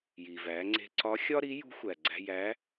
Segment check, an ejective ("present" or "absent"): absent